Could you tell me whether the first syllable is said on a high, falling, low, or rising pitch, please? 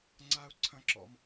high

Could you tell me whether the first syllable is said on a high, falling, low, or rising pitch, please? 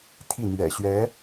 falling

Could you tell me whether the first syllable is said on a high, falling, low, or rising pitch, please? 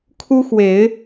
high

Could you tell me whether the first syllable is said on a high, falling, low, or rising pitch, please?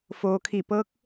low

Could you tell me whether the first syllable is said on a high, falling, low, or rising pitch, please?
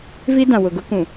high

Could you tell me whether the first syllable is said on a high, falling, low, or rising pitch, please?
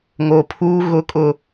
low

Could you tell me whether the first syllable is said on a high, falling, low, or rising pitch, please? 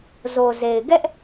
low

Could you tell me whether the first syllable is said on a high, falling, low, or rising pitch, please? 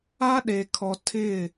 high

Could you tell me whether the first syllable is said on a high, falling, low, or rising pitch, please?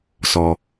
low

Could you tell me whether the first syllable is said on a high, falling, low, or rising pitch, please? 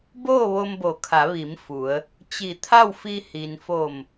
falling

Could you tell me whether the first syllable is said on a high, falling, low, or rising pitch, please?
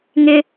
high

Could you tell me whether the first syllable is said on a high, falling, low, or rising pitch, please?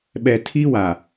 low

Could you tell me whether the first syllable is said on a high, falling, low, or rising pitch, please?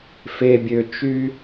low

